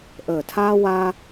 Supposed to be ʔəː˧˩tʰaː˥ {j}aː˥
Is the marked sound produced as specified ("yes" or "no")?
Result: no